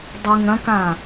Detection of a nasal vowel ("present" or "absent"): present